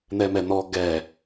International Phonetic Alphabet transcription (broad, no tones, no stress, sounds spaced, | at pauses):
n̪ ɛ m ɛ n̪ ɔ ɡ ɛ